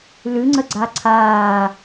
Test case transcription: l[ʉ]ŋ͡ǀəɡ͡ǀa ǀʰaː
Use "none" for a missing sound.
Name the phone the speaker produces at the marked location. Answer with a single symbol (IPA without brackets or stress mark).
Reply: ʉ